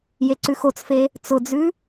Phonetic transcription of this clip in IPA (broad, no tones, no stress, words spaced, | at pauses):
jeǀʉxot͡sfe | t͡sʊd͡zʉ